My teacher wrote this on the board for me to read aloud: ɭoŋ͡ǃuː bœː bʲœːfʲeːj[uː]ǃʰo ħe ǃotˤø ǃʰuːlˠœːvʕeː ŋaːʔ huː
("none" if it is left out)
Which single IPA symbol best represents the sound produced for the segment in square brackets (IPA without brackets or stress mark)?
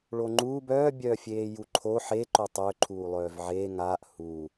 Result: u